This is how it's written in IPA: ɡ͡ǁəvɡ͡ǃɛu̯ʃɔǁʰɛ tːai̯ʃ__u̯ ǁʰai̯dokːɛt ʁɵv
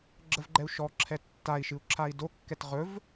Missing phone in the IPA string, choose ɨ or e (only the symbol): ɨ